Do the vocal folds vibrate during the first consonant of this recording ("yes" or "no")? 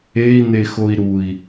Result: yes